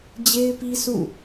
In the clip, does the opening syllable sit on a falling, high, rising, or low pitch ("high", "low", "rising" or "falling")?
high